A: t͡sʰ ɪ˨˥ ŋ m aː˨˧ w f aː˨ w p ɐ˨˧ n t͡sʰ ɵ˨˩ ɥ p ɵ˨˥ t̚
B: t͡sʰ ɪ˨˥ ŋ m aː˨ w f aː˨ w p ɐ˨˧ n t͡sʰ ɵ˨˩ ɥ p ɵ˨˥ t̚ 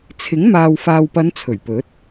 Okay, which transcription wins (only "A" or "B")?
B